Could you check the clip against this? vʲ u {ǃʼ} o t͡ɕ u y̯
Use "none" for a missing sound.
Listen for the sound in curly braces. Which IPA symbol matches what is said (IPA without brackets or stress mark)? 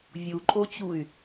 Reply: ǃʼ